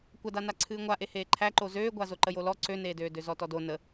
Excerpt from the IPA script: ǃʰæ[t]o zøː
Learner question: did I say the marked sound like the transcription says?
no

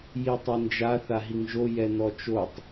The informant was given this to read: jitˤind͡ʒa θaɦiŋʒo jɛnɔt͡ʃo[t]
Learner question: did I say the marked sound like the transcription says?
no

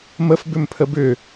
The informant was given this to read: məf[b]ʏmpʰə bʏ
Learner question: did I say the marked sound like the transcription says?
yes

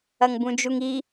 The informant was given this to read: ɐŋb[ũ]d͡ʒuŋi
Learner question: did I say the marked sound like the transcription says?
yes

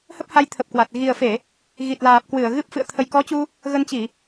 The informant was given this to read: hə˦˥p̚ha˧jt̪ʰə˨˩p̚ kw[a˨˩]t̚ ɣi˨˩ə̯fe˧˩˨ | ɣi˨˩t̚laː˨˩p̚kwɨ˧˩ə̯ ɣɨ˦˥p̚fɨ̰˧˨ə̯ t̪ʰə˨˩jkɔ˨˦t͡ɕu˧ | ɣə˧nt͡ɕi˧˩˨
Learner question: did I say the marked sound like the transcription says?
yes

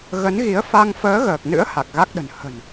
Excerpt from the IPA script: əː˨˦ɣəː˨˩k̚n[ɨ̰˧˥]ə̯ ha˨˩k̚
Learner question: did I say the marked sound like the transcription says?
yes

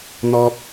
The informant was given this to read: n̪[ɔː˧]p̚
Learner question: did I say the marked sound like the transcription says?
yes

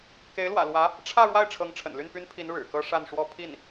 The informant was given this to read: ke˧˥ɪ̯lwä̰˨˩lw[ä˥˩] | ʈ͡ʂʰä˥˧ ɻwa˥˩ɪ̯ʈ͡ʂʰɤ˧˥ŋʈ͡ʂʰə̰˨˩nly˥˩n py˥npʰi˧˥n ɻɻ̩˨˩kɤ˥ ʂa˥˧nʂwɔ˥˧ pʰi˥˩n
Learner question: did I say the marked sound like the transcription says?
no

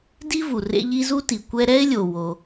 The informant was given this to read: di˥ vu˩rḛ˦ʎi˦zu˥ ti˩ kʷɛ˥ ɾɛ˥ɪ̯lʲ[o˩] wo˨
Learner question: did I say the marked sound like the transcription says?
yes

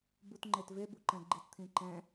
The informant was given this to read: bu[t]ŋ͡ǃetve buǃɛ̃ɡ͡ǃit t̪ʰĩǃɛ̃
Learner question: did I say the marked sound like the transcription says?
yes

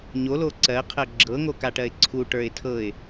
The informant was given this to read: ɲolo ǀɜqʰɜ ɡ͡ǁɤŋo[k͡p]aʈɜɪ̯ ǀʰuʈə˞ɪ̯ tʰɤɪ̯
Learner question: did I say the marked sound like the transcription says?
no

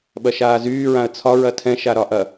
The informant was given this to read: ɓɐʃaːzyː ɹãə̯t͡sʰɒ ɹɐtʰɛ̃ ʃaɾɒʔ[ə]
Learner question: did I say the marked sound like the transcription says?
no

